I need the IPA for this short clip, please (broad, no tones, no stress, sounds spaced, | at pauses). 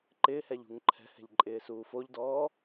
ǃ ɪː h ɛ ʎ ṳ ŋ ǃʰ ɛ̤ h ɛ̤ ʎ ǃʼ ɪː s uː f o ʎ d ɔː